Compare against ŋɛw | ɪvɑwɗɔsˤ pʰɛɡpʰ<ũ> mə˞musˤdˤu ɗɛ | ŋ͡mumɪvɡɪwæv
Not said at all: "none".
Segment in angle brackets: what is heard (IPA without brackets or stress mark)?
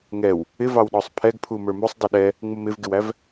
u